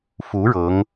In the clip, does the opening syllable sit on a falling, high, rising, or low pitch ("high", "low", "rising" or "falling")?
rising